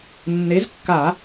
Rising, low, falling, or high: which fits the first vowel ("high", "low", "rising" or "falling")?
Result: rising